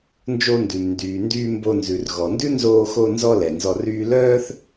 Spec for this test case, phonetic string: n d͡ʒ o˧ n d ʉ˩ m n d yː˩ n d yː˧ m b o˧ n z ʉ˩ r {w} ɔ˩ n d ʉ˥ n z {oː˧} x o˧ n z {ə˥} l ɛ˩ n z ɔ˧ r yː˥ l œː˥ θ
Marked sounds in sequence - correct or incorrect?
incorrect, correct, incorrect

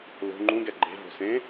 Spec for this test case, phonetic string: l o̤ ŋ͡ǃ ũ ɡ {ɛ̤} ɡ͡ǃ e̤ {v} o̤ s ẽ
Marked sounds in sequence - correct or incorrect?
incorrect, correct

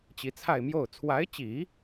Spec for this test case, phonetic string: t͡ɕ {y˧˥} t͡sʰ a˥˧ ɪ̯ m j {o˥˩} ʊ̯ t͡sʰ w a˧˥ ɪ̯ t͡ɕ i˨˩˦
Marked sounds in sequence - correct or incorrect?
incorrect, correct

